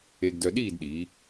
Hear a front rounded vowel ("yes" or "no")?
yes